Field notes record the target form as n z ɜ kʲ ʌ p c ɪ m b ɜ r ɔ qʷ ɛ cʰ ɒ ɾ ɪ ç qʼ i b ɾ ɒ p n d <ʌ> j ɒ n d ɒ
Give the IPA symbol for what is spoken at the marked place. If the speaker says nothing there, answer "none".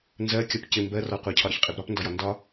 ɒ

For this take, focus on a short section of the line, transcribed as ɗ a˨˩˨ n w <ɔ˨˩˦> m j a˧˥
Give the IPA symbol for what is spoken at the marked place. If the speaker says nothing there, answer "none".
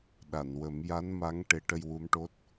ə˨˩˦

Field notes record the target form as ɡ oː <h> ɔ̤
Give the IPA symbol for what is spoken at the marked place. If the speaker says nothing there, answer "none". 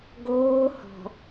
h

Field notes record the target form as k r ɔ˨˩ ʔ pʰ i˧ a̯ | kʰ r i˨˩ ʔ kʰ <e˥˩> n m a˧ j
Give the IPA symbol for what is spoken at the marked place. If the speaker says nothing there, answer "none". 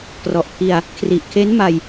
e˦˥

